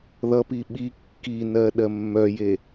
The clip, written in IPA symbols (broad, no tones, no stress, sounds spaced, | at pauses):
ð ʌ p i ɓ i kː i n ɜ ɗ ɜ mː œ j e